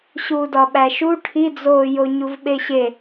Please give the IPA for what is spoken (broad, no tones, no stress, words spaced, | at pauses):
ɕuːdɒɓæʃu ʈʰid͡zoːjoɲuv ɓeɕe